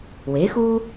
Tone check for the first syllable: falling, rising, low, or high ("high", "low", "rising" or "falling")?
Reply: rising